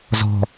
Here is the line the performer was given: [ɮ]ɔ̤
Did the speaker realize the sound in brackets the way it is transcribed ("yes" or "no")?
no